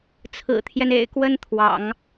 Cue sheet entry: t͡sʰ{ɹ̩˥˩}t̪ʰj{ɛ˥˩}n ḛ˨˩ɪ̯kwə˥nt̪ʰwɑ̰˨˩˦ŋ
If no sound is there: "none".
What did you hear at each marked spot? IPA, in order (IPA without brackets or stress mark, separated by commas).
ɹ̩˨˩, ɛ˦